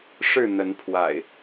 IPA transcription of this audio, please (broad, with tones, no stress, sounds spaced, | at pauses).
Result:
ʂ ɻ̩˥˨ n̪ ə˨˦ n pʰ w a̰˨˩ ɪ̯